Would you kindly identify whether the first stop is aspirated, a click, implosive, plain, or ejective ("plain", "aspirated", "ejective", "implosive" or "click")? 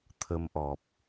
aspirated